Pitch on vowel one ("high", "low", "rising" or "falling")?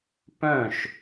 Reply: falling